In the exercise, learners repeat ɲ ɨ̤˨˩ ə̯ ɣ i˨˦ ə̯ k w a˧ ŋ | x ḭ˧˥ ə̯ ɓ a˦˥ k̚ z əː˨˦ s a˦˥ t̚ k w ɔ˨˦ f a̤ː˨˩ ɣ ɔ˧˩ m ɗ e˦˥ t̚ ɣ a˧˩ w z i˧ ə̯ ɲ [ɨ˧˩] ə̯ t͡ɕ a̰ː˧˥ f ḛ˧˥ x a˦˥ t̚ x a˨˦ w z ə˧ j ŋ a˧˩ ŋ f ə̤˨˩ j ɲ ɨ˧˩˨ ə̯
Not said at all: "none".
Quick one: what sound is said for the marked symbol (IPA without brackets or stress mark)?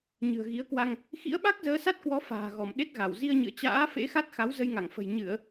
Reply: ɨ̰˧˨